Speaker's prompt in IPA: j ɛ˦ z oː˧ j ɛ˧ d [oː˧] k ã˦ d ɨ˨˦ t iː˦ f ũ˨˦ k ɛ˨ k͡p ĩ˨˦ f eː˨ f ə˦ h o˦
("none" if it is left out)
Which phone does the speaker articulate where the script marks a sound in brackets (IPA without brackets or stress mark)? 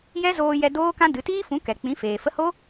oː˦